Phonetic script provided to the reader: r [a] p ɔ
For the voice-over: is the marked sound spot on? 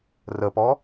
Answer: no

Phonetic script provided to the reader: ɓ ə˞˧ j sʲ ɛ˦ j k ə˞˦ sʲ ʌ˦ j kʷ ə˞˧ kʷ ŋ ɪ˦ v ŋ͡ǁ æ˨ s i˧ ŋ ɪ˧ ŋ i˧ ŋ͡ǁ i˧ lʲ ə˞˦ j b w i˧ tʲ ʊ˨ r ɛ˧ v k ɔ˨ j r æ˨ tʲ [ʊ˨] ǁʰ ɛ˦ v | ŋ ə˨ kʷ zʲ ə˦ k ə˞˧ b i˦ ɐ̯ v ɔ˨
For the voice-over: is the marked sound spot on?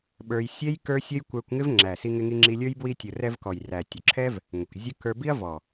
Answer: yes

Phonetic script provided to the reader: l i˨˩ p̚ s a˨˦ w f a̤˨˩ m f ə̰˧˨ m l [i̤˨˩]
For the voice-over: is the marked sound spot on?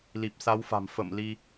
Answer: no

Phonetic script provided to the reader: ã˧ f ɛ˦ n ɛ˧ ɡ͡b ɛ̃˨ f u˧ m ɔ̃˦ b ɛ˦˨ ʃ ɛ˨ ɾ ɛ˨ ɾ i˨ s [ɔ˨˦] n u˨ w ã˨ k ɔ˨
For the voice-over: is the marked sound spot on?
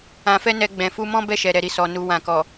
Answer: no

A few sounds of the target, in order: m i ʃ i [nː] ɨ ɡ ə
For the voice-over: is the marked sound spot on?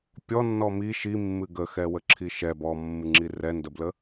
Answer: no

